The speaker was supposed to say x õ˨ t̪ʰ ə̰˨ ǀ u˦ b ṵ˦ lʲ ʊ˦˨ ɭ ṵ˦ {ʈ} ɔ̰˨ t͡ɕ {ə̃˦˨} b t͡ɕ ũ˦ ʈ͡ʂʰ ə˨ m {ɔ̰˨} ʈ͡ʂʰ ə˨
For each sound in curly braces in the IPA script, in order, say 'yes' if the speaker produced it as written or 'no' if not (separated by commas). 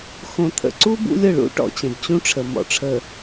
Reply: yes, no, yes